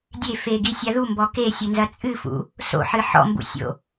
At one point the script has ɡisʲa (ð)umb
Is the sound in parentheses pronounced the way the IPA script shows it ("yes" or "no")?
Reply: yes